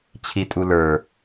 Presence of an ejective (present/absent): present